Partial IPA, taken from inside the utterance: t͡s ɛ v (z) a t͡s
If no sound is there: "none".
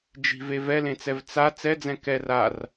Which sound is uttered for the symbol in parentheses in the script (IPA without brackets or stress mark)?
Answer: t͡s